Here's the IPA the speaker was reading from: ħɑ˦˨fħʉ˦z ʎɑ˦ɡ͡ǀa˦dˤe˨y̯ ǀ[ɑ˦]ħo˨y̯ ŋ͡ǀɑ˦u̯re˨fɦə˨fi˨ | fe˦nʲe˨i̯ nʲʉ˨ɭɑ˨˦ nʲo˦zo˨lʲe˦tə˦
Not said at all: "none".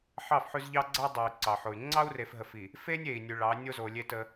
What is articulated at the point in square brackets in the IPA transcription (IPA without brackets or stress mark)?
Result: ɑ˨